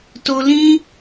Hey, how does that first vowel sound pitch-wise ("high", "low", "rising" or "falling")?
high